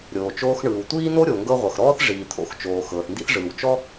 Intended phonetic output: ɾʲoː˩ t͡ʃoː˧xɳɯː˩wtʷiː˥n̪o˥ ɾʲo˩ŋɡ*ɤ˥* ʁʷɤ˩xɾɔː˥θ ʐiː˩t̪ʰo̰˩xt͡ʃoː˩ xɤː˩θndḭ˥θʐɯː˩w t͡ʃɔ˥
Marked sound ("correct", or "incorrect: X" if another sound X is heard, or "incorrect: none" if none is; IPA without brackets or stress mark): incorrect: ɤ˧